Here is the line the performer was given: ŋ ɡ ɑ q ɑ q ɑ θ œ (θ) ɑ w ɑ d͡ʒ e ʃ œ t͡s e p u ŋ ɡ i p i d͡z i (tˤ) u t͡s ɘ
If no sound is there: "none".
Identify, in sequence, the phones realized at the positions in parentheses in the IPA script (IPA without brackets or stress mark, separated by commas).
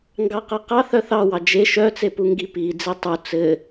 θ, tˤ